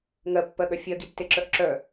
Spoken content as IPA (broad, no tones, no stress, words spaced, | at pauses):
ŋɜpːɜɠœ fʲɜɡitːeǁœʔ ǁœ